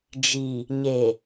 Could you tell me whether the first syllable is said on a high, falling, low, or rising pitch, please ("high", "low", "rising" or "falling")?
low